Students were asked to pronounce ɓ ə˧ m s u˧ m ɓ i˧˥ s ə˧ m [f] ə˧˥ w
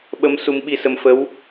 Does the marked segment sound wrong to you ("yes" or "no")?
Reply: no